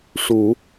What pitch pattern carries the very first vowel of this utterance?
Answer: low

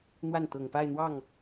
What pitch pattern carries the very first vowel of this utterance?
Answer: falling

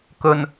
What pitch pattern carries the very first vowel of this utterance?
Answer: low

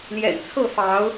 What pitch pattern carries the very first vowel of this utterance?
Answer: low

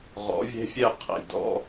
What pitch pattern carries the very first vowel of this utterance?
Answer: rising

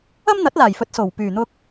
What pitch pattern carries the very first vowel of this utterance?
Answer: high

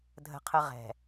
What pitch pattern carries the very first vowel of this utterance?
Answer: high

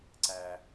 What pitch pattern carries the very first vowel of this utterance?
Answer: low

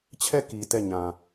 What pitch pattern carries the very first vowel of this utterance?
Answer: falling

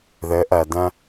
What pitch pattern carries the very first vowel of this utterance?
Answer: rising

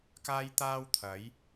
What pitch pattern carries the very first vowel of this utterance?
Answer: high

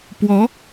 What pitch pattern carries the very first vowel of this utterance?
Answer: rising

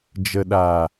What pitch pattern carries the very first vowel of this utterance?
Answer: low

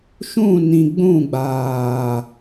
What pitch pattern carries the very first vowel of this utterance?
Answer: falling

